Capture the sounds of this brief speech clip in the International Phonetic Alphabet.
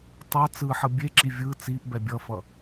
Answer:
tˤ ʌ t͡s ɯ ħ ʌ bʲ e ǁ i vʲ ɯ t͡s i ʔ b ɛ bʲ ʌ f ʌ

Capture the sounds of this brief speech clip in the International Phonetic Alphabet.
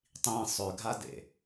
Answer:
tˤ ĩ sˤ ø ɡʱ a d ḛ

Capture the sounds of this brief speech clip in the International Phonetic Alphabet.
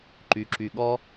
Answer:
ǃ y˧ ǁ y˧ ɠ ɔ˥

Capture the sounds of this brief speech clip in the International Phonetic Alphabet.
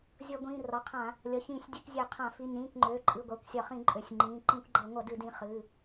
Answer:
zʲ ʌ˧˩˧ ɡʷ ĩː˩˧˩ r ɒ˩˧˩ qʰ ã˧˩˧ | lʲ ʌ˩˧˩ ç ĩː˧˩˧ sʲ dʲ ɨ˧˩˧ k zʲ ø˧˩˧ qʰ ã˧˩˧ f i˩˧˩ ɲ ĩː˩˧˩ k ŋ͡ǃ øː˩˧˩ ǃʼ ɨ˩˧˩ ɡʷ a˩˧˩ kʷ sʲ ɒ˧˩˧ χ ĩ˧˩˧ ǃʼ ø˩˧˩ sʲ ŋ͡ǃ ĩː˩˧˩ ǃ ĩ˧˩˧ kʷ ɡ͡ǃ ʌ˧˩˧ ŋʷ ʌ˧˩˧ d ɨ˧˩˧ d ĩ˩˧˩ χ ɨ˩˧˩

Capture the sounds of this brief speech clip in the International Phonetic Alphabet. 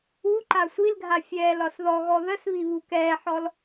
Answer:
u ǃ a sʷ i l ɡʱ a fʲ ɛː l ɒ s ð ɔ ɣ ɔ ð ə s β i β u k ɛː ħ ɔ l

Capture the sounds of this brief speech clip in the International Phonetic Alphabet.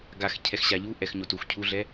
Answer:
ɡ a x cʰ ɛ x ɕ a ʎ u ʔ ɛ x ɲ o t u x cʰ u ɮ ɛ

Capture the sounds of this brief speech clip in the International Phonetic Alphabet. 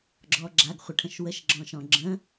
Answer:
ɡ͡ǁ ɔ ɡ͡ǁ a ɡ χʷ ə ʈʰ ə̃ ʃ w ə ʃ ɡ͡ǁ ɔ̃ ʃ ɔ̃ ɡ͡ǁ ə̃

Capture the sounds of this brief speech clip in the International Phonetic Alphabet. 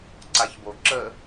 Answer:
ǀ a ç b o ǁ ə

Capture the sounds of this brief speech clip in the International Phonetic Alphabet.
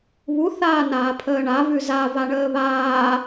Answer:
β u θ aː n aː pʰ əː ɳ a v ʉ z a v a ɳ əː β aː

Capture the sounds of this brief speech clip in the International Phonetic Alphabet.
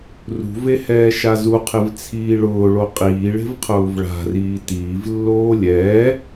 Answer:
r ṳ v e h ɛː ʃ a z u qʰ e v t͡sʰ iː ɭ ʊː ɭ o qʼ iː ɭ e̤ v qʰ ʊː v ɭ a̤ r iː t iː v lː oː lʲ ɛː

